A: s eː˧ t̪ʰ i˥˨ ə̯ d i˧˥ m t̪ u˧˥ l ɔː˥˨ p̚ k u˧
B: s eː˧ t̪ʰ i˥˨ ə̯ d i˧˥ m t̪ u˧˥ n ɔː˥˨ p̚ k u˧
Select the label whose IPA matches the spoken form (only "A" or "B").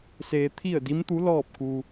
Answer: A